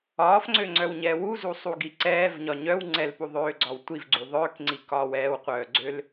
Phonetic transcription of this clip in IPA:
ɒː f ŋ͡ǀ ø ŋ͡ǀ œ w ɲ ɛː w u z u sˤ u ɡ i ǀ ɛː v ɲ ɒ ɲ œ w ŋ͡ǀ ɛ l p u ðˤ øː ɡ͡ǀ ɒ w tʷ i v ɡ͡ǀ u ðˤ œː k ŋ͡ǀ i k ɒː w ɛː w qʷ œː ɡ͡ǀ ø l

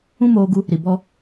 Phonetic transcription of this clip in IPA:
ũ˦ m oː˧ ɡ u˧ | ɾ i˨ b ɔ˧

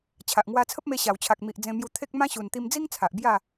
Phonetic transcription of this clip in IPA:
t͡ɕʰ a˨ ʔ ŋ w a˧ t͡sʰ ə˦ p̚ m e˧ ɕ a˨˩ w t͡ɕʰ a˨ k̚ m i˨ ʔ d͡z ẽ˧ m j u˧ t̪ʰ e˦ k̚ m ã˦ ɕ u˨˩ n t̪ i˧ m d͡z i˦ ŋ t͡sʰ a˨ ʔ b j a˥˧

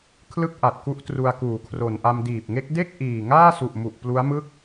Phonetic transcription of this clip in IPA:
kʰ l ɯ˥˩ k̚ ʔ a˨˩ t̚ k u˦˥ ʔ t r u˧ a̯ k uː˩˦ kʰ r o˨˩ n ʔ a˧ m d iː˨˩ p̚ ŋ e˦˥ k̚ d e˥˩ k̚ ʔ iː˨˩ ŋ aː˥˩ s u˨˩ ʔ m u˨˩ ʔ p l u˦˥ a̯ m ɯ˥˩ k̚

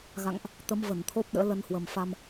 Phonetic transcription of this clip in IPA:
ɣ a̰˧˨ ŋ ʔ | t̪ ə˨˦ m v ə˧˩ n t̪ʰ o˦˥ p̚ ɗ ə̰ː˧˥ l ə˧ n h w ə˨˩ m f a˧ m

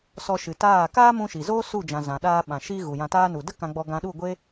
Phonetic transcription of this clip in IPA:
s ɔ˧ ʃ ɨ˨ t aː˦˨ k aː˦ m ũ˧ ʃ i˨ z oː˦ s u˦˨ d͡ʒ ã˨ z ã˨ ɗ aː˧ ɓ ã˨ ʃ i˧ ɣ u˨ j ã˧ t aː˦ n u˨ d ə˦ k ã˧ ɡ͡b ɔ˧ ɡ ã˧ ɗ u˦˨ ɡʷ e˦

